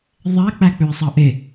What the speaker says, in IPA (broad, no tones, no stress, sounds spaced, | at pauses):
ðˤ æ k͡p æ k͡p ø ɪ̯ sˤ ɑ ʔ e